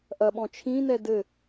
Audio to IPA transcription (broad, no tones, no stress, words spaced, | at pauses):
ʔɐɓɔ̃ t͡ʃʰĩnɛ dɘ